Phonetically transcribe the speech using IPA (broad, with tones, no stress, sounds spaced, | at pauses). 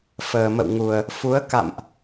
f əː˨˩ m ə̰˧˨ w ŋ u˨˩ ə̯ | f u˨˦ ə̯ k a̰˧˨ m ʔ